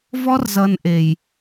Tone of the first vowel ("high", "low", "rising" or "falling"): high